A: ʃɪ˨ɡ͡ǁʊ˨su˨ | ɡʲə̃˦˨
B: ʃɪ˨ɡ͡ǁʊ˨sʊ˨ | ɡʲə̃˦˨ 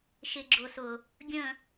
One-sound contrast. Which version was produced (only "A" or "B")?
B